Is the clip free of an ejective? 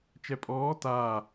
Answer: no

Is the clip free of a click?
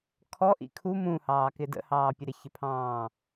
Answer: yes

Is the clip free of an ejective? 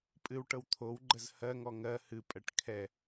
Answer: no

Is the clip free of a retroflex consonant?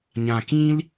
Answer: yes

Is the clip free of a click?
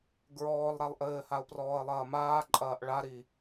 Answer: no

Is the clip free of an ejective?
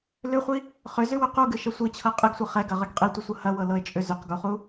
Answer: no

